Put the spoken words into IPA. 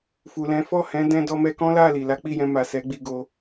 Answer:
fu˨lɛ̃˨˦fɔ˦˨ hɛ̃˨˦dɛ̃˧dɔ˧mɛ˧ kɔ̃˦la˦˨ li˨la˨˦ k͡pi˦˨jɛ̃˧ ma˨ sɛ˨˦ɡ͡bi˧ɡo˧

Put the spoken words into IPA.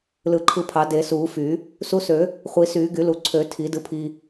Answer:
lɯ˨˩˦ǃʰɯ˧pʰɑ˨˩˦ de˨˩˦suː˨˩˦fy˨˩˦ | su˧sø˨˩˦ | χʷi˨˩˦syː˨˩˦ɡy˨˩˦lu˨˩˦ ǀʰø˨˩˦ tʰi˨˩˦dɯ˧pʰi˧

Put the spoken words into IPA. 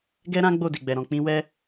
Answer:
ɡɛ˦ɾã˦ɡ͡bo˦˨di˨ ɡ͡bɛ˨ɾɔ̃˨k͡pĩ˨˦wɛ˦

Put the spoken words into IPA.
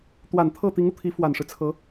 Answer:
t̪wa˨˩nt̪ʰɤ˥˩ t̪i˧˥ŋu˧t̪ʰi˧˥ fwa˨˩nʂɻ̩˦t͡sʰɤ˧˥

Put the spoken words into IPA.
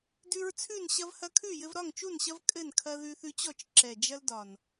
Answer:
dʉ˦ɹt͡sʰʉ˥˨n ɕɐ˦vhɐ˦kʰʉ˥˨jɘ˦v ɾɒ˥˨ŋt͡ʃu˥˨nɕɐ˦v kʼɘ˥˨nkʰɐ˦ ðʉ˦θʉ˦t͡ɕɔ˥˨t͡ʃ ǁɛ˨˩d͡ʒɐ˦l dɒ˨˩n

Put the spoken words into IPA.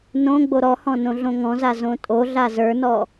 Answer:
nõ ɡ͡boɾɔhɔ̃ nõɮõŋɔ̃za zõtʼoɮa zə˞nɔ

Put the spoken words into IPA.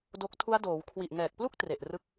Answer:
do˦˥k̚ tʰu˦˥a̯doː˩˦w kʰwi˨˩ʔŋɛː˨˩k̚plu˥˩k̚ tre˨˩ʔrɯ˦˥k̚

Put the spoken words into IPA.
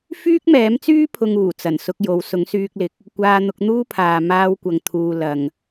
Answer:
fyː˥k̚mɛː˨˥mt͡syː˥ pʰʊ˧ŋ uː˨˩ t͡sɐ˨˩nsʊ˧k̚ jo˨˧w sʊ˨˥ŋsyː˧k̚lɪ˨k̚ | kʷaː˧n̪ʊ˨˥k̚n̪uː˥pʰaː˨ maː˧w kʷɐ˨ŋt̪ʰuː˨ lɐ˨ŋ

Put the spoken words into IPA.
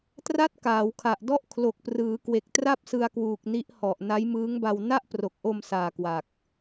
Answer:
tra˥˩t̚ kaː˩˦wkʰa˨˩ʔ dɔ˥˩ʔkʰlo˨˩k̚prɯː˩˦kwe˨˩k̚ tra˥˩p̚sɯ˧a̯kwuː˨˩k̚ ni˦˥ʔhɔ˨˩ʔ na˦˥jmɯː˦˥ŋba˧w na˥˩ʔpro˨˩k̚ʔo˧msaː˨˩ kwa˨˩k̚

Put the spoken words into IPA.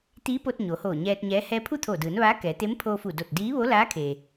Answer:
t̪iː˧˥po˧t̚ ɲoː˩˧hoː˧˩ ɲɛː˧t̚ɲɛː˧˥ hɛː˧pʰu˥˨t̪ʰoː˧˩dɯː˩˧n ʋaː˧˥kɛː˩˧ t̪e˧˥mpʰoː˧fu˧˩do˧˩t̚ diː˧˥ʋo˧˥laː˧˥kʰe˩

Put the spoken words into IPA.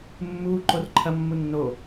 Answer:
mːuː ǃorǃʰɐ mːunːo

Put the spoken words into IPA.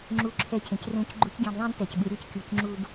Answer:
ŋ͡ǁu˧ǁʰɛ˧cʰẽ˩crẽ˧˥c ɡ͡ǃu˧˥cɡʲẽ˧dðˤẽ˥d tɛ˩c ɓɯ˩˧ɾʲo˧˥ckʲu˩˧cŋ͡ǁu˧d

